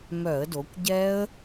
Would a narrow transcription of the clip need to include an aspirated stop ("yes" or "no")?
no